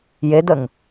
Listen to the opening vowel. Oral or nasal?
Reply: oral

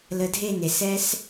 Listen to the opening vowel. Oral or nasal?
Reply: oral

